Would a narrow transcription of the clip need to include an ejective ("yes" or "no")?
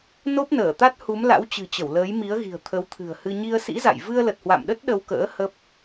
no